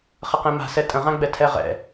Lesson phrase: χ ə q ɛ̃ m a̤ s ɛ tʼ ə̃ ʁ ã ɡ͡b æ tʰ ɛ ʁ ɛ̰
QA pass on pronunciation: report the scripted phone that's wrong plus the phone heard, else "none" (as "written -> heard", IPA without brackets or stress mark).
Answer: æ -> ɛ